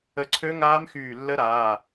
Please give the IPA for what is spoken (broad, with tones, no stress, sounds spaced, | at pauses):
ə˧˩ ǀʰ ø˦˥ ŋ aː˦˥ m x yː˧˩ lː ə˦˥ ɾ aː˩˧˩